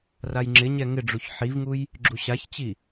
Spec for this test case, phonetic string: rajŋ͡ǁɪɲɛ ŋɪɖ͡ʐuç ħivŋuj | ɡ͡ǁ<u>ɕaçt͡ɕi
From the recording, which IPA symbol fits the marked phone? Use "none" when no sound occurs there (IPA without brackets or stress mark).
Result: u